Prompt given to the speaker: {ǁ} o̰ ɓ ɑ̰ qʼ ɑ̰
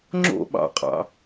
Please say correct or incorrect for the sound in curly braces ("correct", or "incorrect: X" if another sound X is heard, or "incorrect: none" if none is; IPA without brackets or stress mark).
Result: incorrect: ŋ͡ǁ